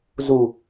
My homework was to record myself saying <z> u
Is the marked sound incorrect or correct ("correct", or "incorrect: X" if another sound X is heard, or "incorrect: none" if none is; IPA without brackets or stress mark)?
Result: correct